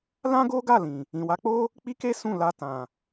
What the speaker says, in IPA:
l ã˦ ɡ o˦ ɡ a˦˨ l ĩ˨ | ĩ˨ w a˨˦ k͡p o˦ | k͡p i˦ k e˦ s ũ˦˨ l a˧ t ã˨

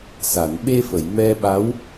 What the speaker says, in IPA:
s a˨˩˨ n ɓ e˧ f ə˨˩˨ j m ɛ˧ ɓ a˧˥ w

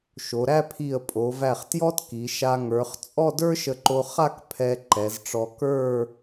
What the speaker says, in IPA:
ʃ o˩˧ ɾ æ˥˧ pʰ i˧˩ ə̯ pʼ o˩˧ v æ˧˩ χ t j ɔ˥ t k i˩˧ ʃ a˧ ŋ ə˞˩˧ χ t͡sʼ ɔ˥˧ d ə˞˥ ʃ ə˧ ǃ o˧ χ a˥˧ k pʰ ɛ˧ ǃ ɛ˩˧ z ʈ͡ʂ ɔ˧ k ə˞˥˧

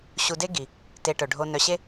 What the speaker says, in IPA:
ɕ u˨ d e˦ ɡ i˩ | t e˨ ʈ œ˩ ɖʱ o˨ n œ˨ ɕ e˦

